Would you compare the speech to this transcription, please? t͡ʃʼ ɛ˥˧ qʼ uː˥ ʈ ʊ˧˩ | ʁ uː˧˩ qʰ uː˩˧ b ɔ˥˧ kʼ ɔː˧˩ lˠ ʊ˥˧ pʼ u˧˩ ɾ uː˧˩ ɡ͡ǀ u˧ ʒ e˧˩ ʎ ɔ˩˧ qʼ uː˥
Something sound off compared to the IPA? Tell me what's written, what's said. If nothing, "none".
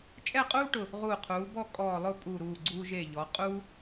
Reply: none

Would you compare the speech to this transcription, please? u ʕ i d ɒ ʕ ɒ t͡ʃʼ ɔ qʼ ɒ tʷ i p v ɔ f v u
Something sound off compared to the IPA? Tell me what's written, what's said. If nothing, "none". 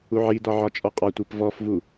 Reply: none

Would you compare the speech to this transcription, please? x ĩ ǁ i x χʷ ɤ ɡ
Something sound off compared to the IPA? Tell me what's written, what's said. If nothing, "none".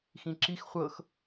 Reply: ɡ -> x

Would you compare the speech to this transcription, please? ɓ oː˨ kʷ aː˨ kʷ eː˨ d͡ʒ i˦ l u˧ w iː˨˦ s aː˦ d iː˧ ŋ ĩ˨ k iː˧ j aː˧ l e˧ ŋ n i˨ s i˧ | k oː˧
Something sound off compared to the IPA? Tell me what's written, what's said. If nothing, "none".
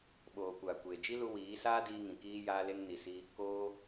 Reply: none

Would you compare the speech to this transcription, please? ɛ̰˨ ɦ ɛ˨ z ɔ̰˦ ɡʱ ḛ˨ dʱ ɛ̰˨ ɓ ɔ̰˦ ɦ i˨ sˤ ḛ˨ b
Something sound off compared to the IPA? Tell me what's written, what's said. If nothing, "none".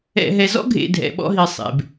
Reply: none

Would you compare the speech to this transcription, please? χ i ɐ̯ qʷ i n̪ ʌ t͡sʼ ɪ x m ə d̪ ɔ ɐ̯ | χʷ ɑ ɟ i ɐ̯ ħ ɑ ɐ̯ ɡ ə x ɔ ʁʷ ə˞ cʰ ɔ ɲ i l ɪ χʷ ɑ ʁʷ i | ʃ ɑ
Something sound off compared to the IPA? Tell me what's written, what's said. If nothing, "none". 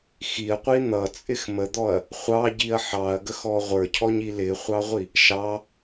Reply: χ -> x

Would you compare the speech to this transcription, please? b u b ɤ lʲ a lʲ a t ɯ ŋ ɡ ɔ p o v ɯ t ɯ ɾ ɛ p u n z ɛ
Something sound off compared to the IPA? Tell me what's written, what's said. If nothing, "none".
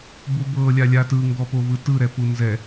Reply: none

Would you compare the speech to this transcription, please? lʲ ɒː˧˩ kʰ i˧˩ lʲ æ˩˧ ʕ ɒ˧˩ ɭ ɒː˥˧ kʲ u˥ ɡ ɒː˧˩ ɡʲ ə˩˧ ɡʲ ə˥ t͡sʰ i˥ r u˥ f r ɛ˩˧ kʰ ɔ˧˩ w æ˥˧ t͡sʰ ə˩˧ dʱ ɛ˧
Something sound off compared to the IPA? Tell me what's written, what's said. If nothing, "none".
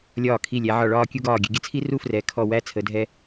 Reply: none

